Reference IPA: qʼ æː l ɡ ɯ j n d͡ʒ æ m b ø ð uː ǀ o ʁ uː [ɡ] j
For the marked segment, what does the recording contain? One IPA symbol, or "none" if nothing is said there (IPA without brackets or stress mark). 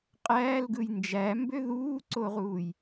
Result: none